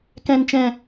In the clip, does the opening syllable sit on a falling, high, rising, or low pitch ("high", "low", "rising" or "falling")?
low